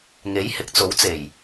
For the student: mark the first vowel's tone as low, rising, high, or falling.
rising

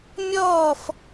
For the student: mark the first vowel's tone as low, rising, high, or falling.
falling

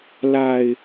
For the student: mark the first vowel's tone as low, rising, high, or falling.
low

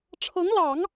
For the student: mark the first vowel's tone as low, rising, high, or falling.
rising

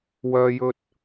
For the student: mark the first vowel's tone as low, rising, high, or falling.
low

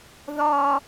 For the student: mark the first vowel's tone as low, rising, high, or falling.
high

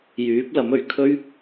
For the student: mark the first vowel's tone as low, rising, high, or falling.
rising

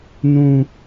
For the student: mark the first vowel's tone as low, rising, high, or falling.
high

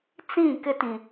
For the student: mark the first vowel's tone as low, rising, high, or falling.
falling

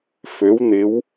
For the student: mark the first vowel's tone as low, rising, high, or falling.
rising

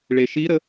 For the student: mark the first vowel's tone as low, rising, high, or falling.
low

